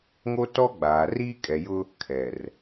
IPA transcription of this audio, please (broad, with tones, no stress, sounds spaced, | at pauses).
ŋ o˦ t ɔ˦ ɡ͡b aː˨ r iː˦ kʼ ɛ˨ j ʊ˦ | kʰ ɛ˨ r